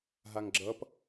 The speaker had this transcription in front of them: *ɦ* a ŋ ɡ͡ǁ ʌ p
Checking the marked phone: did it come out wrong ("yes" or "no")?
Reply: no